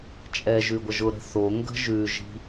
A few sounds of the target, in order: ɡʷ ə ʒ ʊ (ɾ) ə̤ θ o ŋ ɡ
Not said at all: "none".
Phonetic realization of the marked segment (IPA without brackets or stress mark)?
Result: ɾ